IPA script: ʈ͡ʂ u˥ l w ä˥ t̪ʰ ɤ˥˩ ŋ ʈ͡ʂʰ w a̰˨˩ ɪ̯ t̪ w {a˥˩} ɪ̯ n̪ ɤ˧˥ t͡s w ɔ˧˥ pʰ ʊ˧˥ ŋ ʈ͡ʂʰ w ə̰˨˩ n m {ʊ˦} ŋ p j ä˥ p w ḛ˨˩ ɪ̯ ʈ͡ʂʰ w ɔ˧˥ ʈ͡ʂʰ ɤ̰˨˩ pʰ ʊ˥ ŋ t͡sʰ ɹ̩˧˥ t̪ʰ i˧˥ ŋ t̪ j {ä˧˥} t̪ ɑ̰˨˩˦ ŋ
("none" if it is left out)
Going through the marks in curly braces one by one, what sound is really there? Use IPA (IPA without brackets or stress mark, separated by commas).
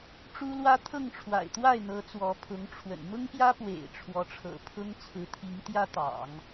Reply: a˥˩, ʊ˥, ä˥